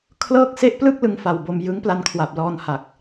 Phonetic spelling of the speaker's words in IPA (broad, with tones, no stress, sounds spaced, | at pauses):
kʰ l ɤː˥˩ k̚ s e˥˩ ʔ p l ɯ˥˩ k̚ l ɯ˧ ŋ f a˨˩ w b o˧ m j ɯ˦˥ ŋ p l a˧ n kʰ w a˨˩ p̚ l ɔː˧ n h a˨˩ k̚